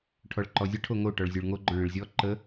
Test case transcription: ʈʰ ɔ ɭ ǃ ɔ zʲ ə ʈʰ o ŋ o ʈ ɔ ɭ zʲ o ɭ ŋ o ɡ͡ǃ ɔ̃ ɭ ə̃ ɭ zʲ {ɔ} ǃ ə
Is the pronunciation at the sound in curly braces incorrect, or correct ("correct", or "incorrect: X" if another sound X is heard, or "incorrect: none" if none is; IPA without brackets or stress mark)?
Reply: correct